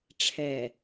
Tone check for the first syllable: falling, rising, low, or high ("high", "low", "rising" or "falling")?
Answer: low